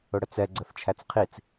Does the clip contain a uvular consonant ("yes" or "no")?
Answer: yes